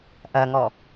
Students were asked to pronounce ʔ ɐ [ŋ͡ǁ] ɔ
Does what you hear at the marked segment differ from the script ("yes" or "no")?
yes